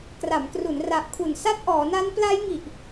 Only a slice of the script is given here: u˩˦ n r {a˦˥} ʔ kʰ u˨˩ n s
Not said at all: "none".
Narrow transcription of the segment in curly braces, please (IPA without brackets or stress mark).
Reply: a˨˩